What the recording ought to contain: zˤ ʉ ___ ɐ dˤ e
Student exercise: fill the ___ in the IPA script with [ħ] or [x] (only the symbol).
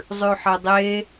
ħ